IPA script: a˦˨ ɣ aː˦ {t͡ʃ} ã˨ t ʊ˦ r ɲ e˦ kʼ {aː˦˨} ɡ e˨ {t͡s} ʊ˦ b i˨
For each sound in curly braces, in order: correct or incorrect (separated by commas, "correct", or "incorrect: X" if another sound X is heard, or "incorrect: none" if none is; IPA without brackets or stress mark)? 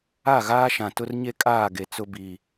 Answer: incorrect: ʃ, correct, correct